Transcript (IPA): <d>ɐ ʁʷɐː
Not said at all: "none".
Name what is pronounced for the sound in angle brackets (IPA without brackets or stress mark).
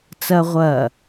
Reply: t͡s